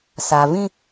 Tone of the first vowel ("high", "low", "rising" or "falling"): low